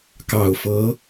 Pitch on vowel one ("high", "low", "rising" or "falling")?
low